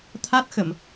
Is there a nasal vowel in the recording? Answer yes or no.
no